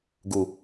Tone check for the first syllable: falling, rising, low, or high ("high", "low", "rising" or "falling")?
low